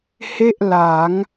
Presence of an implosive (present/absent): absent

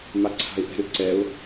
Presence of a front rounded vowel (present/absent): present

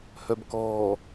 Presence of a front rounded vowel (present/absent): present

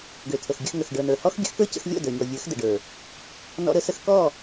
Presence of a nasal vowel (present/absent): absent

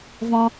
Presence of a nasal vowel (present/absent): present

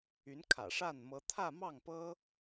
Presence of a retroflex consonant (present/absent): present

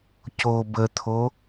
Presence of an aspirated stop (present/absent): present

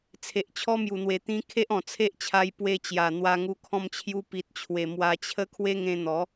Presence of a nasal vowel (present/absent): present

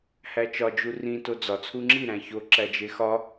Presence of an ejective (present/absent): absent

